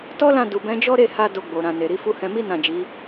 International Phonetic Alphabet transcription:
tɔ˦lã˦˨ du˨bɛ̃˨˦d͡ʒɔ˦ɾe˦˨ ha˧ do˧ɡ͡bo˨ ɾã˨ne˨ɾi˨˦fu˦ hɛ̃˧mi˦ nã˦˨d͡ʒi˨˦

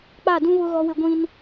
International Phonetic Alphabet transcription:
k͡pa˦˨dũ˦βʊ˦ ɣɔ˦wɪ˦ɡʷĩ˦n

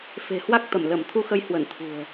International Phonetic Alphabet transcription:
fe̤˨˩hwa˦˥k̚t̪ə˧˩m lə˧˩m t̪ʰu˧xə˧jhwə˧˩n t̪ʰṳ˨˩ə̯

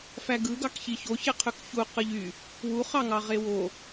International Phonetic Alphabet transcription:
fæɡɯɡɑkçi çoçeqʰøk çu qɯʎy | wuχɑŋɑ ʁewo

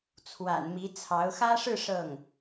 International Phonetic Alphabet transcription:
t͡sʰwa̰˨˩nmi˧˥t͡sʰɑ˧˥ʊ̯ xä˥ʂɻ̩˥˧ ʂɤ˥˩ŋ

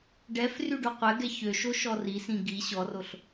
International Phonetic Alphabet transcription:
ɖɛf ryɖoqʷɛɡɛ çøʃo ʃɔrisĩ ɡi ɕɔroɬ

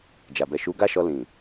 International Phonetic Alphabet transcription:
d͡ʒa˨bɛ˨ ʃu˨˦ɡa˦ ʃɔ˧lĩ˨

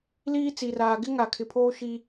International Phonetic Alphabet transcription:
liː˦ t͡si˨raː˨ ɡɪ˦ŋa˨ kʰɪ˨pʰoː˦ ʃi˨

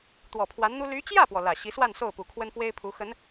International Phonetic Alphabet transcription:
t̪wɔ˨˩pʰwa˧˥nn̪u˥ ly˧˥t͡ɕjä˥˩pwɔ˩ lä˨˩ɕi˧˥swa˥˧n so˥˩ʊ̯pu˨˩kʰwə˥nfwe˥ɪ̯ pʰu˧˥xə˧˥n

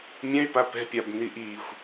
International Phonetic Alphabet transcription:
mʲɛ̃y̯pa pɛ̤pʲabni ʔixʷ

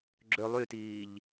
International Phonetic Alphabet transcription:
ɡ͡ǁø lˠytiːʎ

